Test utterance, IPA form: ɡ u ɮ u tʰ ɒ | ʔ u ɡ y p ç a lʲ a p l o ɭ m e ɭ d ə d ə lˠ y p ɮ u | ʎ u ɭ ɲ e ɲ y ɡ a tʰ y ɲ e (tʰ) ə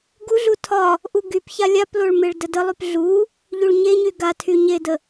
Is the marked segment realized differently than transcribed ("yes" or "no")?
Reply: yes